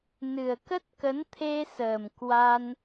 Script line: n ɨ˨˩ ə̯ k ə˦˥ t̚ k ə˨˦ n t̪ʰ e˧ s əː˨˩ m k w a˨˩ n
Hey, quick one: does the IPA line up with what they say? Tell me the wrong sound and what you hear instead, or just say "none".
a˨˩ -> a˧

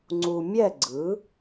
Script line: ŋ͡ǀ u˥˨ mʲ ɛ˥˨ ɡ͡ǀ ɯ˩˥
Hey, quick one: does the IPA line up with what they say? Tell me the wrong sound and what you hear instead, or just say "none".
u˥˨ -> u˨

